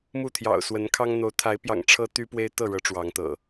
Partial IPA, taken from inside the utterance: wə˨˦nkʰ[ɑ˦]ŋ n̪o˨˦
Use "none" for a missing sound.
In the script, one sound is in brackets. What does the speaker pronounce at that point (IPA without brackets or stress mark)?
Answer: ɑ˦